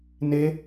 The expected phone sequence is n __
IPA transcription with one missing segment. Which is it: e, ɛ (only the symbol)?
e